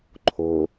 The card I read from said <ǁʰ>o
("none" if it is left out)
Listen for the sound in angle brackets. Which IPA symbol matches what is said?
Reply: ǃʰ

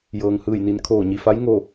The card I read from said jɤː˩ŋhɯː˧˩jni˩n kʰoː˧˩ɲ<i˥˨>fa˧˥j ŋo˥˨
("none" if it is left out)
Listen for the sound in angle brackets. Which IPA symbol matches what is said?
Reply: i˩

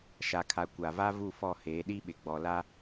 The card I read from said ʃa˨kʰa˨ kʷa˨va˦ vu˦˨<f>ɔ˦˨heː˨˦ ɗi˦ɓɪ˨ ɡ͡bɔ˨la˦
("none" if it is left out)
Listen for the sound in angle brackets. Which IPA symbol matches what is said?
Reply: f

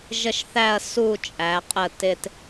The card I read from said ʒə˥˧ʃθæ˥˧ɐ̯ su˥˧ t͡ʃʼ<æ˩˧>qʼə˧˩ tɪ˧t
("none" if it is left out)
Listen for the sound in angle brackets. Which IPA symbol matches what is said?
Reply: æ˩˧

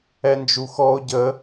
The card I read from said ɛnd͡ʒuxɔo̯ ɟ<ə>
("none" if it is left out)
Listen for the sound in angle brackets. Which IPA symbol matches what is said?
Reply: ə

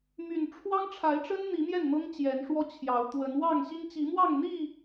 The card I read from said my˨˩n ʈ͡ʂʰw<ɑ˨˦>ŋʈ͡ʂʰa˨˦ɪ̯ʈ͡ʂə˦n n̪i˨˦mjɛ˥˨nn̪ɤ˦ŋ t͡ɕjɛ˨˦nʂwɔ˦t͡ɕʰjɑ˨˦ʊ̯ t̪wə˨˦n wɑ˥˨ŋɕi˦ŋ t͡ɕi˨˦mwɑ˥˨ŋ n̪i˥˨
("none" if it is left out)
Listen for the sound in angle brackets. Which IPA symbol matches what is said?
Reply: ɑ˦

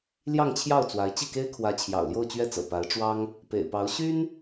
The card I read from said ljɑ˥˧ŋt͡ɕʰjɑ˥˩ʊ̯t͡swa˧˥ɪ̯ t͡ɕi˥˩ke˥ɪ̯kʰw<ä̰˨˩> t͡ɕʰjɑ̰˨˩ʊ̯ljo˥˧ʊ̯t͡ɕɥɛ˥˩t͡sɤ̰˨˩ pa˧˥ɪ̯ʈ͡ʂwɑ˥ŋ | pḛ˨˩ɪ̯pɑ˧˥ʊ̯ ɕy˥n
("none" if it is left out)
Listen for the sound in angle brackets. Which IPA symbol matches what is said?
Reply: ä˧˥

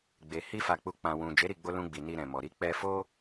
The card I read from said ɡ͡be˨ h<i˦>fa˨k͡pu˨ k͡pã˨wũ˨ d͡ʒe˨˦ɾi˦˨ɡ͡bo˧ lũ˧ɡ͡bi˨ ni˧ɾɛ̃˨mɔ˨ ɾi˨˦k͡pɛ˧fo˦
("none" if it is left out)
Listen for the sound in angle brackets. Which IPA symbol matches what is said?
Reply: i˧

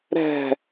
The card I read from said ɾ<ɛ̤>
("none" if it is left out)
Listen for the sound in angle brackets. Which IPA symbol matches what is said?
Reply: ɛ̤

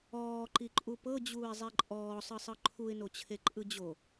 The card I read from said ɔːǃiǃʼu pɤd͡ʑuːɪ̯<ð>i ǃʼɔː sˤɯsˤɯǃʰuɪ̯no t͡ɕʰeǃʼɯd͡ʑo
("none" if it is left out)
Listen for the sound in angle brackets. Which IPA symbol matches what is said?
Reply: zˤ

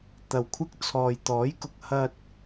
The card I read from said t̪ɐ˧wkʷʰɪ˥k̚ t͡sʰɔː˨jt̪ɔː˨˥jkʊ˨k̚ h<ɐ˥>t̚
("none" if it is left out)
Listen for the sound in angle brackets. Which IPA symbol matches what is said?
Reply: ɐ˧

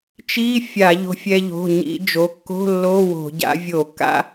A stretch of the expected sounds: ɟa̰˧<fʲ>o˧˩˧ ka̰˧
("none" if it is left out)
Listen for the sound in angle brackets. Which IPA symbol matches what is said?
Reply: vʲ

